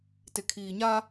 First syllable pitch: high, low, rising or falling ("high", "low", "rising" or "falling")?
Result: low